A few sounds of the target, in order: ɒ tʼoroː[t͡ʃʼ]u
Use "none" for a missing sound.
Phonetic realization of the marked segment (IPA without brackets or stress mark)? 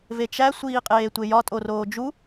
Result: d͡ʒ